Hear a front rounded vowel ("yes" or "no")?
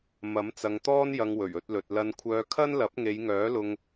yes